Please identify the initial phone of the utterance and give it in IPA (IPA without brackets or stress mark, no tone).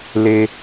l